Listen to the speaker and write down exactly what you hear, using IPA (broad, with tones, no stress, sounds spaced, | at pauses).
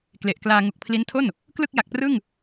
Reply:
k l e˨˩ ʔ k l aː˧ ŋ u˨˩ k̚ pʰ l i˦˥ n tʰ o˥˩ n | k l ɯ˥˩ k̚ j a˨˩ k̚ p r ɯ˥˩ ŋ